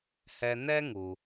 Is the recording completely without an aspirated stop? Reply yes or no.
yes